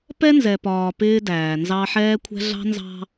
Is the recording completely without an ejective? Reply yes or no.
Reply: yes